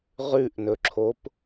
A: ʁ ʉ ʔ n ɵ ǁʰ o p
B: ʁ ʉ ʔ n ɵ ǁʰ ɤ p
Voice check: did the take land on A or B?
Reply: A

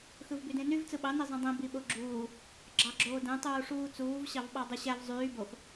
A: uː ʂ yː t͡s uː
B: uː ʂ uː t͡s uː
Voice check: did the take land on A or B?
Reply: B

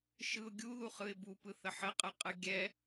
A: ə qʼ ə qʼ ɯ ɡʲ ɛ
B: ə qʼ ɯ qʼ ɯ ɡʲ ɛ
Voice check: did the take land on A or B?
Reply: B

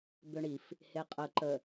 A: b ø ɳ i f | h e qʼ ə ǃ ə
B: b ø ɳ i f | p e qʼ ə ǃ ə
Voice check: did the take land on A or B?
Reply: A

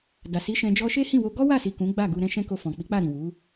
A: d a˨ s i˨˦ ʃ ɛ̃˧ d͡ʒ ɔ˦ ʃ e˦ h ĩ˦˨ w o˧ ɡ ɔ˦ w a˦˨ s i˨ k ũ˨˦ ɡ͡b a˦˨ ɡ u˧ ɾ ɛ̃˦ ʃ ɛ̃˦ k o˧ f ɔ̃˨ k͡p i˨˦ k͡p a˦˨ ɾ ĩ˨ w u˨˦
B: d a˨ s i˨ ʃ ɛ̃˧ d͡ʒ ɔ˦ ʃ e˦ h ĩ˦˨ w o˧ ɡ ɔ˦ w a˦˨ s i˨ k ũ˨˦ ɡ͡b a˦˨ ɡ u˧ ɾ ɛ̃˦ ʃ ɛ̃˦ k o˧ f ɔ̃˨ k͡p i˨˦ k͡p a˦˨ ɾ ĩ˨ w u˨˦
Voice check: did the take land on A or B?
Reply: A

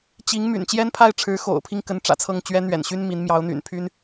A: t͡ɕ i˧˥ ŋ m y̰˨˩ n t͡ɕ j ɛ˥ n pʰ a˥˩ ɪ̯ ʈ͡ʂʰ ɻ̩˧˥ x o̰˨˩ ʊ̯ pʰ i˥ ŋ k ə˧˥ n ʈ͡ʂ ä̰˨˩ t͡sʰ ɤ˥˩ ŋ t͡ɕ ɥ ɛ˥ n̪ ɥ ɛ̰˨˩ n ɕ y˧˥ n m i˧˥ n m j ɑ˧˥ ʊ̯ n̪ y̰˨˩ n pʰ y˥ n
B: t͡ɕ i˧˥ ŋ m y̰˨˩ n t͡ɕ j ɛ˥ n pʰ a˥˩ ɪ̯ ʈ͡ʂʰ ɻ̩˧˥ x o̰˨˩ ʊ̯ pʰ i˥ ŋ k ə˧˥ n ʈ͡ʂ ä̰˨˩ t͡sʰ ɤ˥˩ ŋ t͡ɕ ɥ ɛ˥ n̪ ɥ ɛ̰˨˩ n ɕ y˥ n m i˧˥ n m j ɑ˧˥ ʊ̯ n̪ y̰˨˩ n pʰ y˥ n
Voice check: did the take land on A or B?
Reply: B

